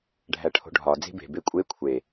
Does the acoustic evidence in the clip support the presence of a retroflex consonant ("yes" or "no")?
yes